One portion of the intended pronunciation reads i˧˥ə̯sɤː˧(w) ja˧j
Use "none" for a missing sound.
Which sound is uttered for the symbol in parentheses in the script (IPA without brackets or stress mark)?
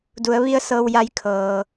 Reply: w